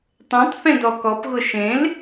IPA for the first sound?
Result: tˤ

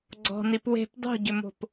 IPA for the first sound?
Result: ɡ͡ǀ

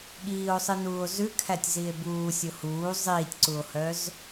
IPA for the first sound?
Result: ɠ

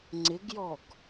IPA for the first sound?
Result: ŋ͡ǀ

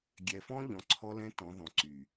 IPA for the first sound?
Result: ɡʲ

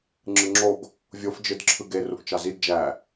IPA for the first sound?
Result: ŋ͡ǁ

